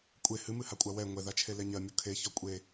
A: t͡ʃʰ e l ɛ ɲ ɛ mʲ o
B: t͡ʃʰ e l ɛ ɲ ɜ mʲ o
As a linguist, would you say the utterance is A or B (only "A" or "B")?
B